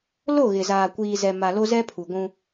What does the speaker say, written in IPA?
l o˦˨ ɣ ɪ˨ z aː˨ kʷ iː˨ z ɛ˨ m a˨ l o˦ z ɛ˦ pʰ u˨ ɡʷ ũ˦

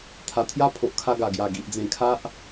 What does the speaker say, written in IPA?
t̪ʰ a˨˩ t̪ʰ j a˦ pʰ o˨ ʔ kʰ a˧ ɡ a˨˩ ɡ j a˨˩ ɡ i˨ ʔ d͡z ẽ˨˩ kʰ a˦ ʔ

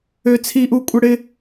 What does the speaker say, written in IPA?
ø˦ t͡sʰ i˦ ʔ u˦ kʷʼ ə˦ ɽ ɪ˦

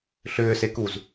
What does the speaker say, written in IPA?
ɬ ʏː s e k u z

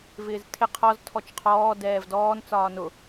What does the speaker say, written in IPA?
v ɪː z tʰ ɪ qʰ ɔ z tʰ ɔ t͡ʃ qʰ ɔː d ɛː v d ɔː n t͡s ɒː n ʊ

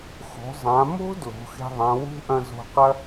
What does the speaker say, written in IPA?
x o̤˩˧ zˤ ã˩˧ m o̤˥ d l o̤˩˧ x e̤˧ ðˤ ã˩˧ w ṳ˥ ʔ ɐ̃˧ z o̤˧ q ɐ˥

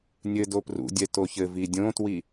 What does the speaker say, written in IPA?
nʲ ɘ d o p r ṵ dʲ ɛ t o ç ɘ v i dʲ õ t w i

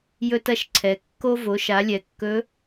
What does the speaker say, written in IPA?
j ɵ˧ t ɐ˧ ʃ ǀʰ ɛ˩ kː o˧ v o˩˧ ʃ a˩˧ lʲ ɛ˩˧ kː ɵ˧˥

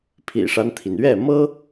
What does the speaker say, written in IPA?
pʰ ḭ˨˩ ʂ a˦ n t̪ʰ i˩ n ɥ ɛ˥˩ m ɤ˥

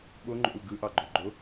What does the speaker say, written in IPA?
ɓ o ŋ͡ǃ o̰ u̯ ɡ ɯ ʔ ɑ ɡ͡ǃ o ɡ͡ǃ o

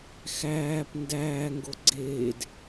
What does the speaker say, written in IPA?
x æː p n d æː ŋ ɡ o ɡ͡ǀ eː d

